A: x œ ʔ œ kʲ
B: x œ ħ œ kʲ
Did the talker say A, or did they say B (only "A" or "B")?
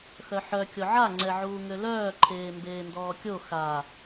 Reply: B